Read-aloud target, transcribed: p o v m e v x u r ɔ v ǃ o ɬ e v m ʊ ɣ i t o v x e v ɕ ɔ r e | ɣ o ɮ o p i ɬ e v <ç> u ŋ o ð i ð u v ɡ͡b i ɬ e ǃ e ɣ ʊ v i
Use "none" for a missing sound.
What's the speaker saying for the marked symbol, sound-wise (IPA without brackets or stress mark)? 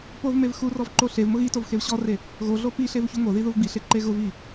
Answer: ç